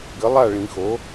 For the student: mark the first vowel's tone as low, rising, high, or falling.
rising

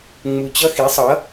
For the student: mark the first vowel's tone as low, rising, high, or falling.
low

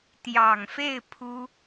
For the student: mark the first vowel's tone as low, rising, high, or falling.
low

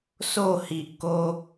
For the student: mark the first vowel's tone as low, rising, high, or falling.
falling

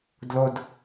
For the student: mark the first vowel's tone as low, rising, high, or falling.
high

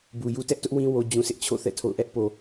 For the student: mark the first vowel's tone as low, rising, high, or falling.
low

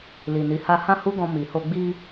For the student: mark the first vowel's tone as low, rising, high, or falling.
low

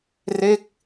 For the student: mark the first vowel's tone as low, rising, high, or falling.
falling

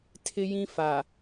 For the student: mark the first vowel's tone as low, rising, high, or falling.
high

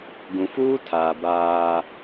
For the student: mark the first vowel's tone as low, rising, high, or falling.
low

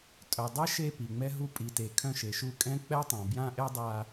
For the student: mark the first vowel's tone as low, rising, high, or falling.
low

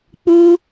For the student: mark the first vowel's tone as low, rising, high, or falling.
high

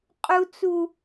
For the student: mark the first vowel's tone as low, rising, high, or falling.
high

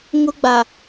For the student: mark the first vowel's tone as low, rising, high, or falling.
high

